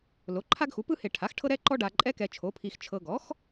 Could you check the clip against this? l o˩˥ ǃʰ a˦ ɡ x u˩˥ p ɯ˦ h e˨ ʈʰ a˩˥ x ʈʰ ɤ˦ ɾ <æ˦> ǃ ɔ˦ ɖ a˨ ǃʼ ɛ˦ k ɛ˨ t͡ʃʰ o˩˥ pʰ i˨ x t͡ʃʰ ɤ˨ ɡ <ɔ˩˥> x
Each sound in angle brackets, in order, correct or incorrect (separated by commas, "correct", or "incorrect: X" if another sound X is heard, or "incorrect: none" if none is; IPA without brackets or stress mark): incorrect: ɛ˦, correct